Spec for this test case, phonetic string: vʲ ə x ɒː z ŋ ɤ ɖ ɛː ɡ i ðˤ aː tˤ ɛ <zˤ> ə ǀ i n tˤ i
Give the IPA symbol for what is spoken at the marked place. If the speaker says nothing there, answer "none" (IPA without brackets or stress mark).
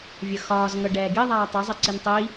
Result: zˤ